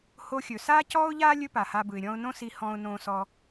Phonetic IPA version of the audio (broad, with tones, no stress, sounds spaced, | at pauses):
h o˧ xʲ ɵ˩ s aː˥ c ɔː˥ ʊ̯ ʎ aː˥ lʲ ɵ˥ p a˩ h a˧ b ɯ˩ ɪ̯ ɾʲ ɔ̃˧ ʊ̯ n õ˥ s i˧ h ɔ̃ː˧ ʊ̯ n õː˧ s ɔ˧